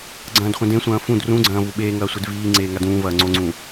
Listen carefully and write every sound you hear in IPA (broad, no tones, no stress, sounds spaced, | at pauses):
ɡ͡ǀ ɐ̃ː d χʷ ɐ̃ d ẽ sʷ ɐ̃ː f ũ d r ũ ɡ͡ǀ ɐ̃ː v u ɓ eː ŋ ɐː sʷ e d v iː ŋ͡ǀ eː ŋ a d ũː v ɐː ŋ͡ǀ o ŋ͡ǀ ũ